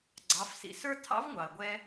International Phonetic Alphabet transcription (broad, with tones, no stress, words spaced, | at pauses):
ɡ͡ǀɑ˩˧fsḭ˩ sə˞˥ tʰɑ̰˧˥vŋʷɑ˩ə̯ɡʷɛ˧